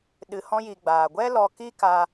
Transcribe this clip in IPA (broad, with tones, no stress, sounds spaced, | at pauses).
ɗ ɨ˧ h ɔ̃˦ j i˧ ɡ͡b aː˨ ɡʷ ɛ˦ l ɔ˧ k i˦ k aː˧